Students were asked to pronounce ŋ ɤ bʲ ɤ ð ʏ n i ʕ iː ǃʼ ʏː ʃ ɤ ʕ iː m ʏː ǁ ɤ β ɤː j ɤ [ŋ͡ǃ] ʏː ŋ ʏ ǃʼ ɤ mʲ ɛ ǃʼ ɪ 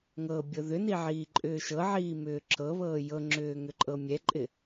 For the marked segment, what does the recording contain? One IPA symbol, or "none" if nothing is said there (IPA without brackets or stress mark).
ŋ͡ǁ